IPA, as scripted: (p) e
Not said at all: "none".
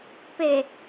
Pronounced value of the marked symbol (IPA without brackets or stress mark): p